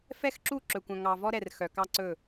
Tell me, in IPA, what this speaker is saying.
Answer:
f ɛ˦ x ǁ u˦˨ ǁ ɵ˨ kʷ œ̃˨ ŋ ɑ˨ v ɔ˦ ɾ ɛ˨ r x œ˨ k ɑ˦ ǀ ɵ˦˨

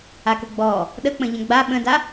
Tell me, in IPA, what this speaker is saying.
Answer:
a k o ɡ͡b ɔː | ɗ ə k͡p ə̃ ʎ ə̃ ɡ͡b a ɓ ə̃ d a

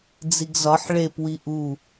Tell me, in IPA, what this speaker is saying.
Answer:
d͡z i ɡ z ɒ ħ ɭ e p w i ʔ u

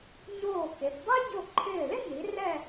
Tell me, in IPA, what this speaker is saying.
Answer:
ɲ oː˧˩ k e˩˧ p dˤ u˥ ɟ o˧˩ ǃʰ ɪː˧˩ l ɪ˥ n i˩˧ r ɛ˥˧

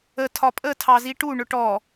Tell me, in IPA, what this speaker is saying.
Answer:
ə tʰ ɒ pʼ ə tʰ ɑ z i ʈ u ɳ ʊ ʈ ɔ

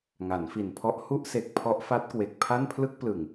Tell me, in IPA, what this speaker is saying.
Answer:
ŋ a˩˦ n f i˨˩ n pʰ ɔ˦˥ ʔ h u˥˩ ʔ s e˨˩ k̚ pʰ ɔ˦˥ ʔ f a˦˥ t̚ k w e˨˩ k̚ pʰ a˥˩ n pʰ l ɯ˥˩ k̚ p l ɯ˨˩ ŋ

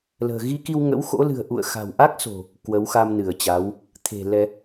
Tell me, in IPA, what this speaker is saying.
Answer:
l ə̤ː˨˩ ɣ i˧ k i˧ w ŋ ə̰˧˥ w x o̰˧˥ l ɨ̤˨˩ ə̯ ʔ ṵ˧˨ ə̯ x a̤˨˩ w ʔ a˦˥ k̚ s o̤˨˩ | k w ə˨˦ w x a˧ m n ɨ˧˩ ə̯ t͡ɕ a˨˦ w | t̪ʰ e̤˨˩ l ɛ˧

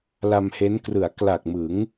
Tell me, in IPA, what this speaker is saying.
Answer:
l a˧ m h e˦˥ n k r ɯ˩˦ a̯ k l a˨˩ k̚ m ɯ˩˦ ŋ

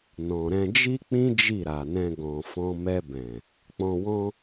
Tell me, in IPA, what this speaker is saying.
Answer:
n ɔ̃˨ ɾ ɛ̃˧ d͡ʒ i˦ k͡p ĩ˦ d͡ʒ i˦˨ ɾ a˨ n ɛ̃˧ ɡ ɔ̃˨ f ɔ̃˧ m ɛ˧ b ɛ̃˨ | k͡p ɔ̃˧ w ɔ̃˦

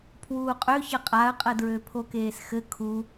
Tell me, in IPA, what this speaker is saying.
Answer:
pʰ w uː qʼ ø ç ə qʼ a ə̯ qʼ ə d ɹ ø pʰ o k eː s x ɘ kʰ u

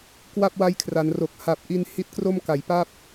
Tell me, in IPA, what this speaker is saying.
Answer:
k w a˥˩ p̚ w a˦˥ j kʰ r a˩˦ n r o˨˩ k̚ h a˨˩ p̚ ʔ i˧ n h i˦˥ t̚ k r o˥˩ m k a˨˩ j p a˥˩ p̚

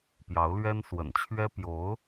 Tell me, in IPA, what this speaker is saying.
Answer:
p j ɑ˧˥ ʊ̯ l ɥ ɛ˥ n s w ə̰˨˩ n t͡ɕʰ ɥ ɛ˥ p j o˧˥ ʊ̯

